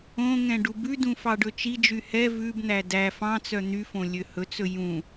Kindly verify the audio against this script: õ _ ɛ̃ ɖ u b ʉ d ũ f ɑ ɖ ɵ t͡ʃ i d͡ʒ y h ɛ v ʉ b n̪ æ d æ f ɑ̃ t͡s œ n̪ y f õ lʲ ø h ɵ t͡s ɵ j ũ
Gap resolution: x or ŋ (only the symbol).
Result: ŋ